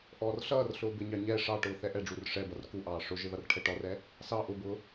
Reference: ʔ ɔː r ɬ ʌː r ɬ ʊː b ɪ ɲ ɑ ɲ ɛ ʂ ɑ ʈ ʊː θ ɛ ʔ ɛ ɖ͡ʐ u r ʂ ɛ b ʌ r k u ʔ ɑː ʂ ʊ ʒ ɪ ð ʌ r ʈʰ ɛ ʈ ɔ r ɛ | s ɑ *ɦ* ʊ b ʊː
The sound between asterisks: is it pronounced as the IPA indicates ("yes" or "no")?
no